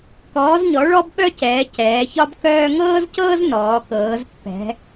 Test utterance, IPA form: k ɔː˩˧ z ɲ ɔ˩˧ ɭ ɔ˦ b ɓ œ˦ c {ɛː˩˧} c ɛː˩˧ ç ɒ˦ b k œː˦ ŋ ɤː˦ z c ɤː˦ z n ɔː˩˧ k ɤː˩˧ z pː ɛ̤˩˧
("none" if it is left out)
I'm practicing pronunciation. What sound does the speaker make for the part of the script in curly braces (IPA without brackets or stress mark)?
ɛː˩˧